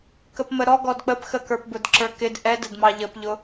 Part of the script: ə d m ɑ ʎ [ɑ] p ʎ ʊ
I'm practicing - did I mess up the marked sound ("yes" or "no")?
yes